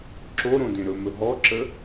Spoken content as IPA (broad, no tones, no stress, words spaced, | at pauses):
ǁoɾõ dẽɾɵmɵ ɦɔǁə